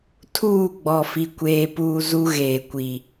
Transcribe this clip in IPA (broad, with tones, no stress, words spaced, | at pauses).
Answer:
tʰuː˦˨ɡ͡bɔ˨fi˨ kʷeː˦puː˦ zu˦ɣeː˨kʷi˨